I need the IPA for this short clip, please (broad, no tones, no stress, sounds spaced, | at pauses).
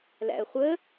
l æ̰ ə̯ χʷ ə